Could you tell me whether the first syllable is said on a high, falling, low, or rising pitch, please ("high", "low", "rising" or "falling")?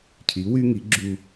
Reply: rising